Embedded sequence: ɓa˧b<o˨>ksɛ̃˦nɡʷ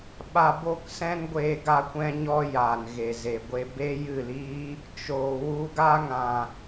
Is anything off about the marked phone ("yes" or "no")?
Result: yes